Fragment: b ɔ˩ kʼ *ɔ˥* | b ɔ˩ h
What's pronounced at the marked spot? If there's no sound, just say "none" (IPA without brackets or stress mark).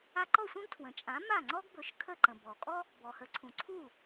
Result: ɔ˥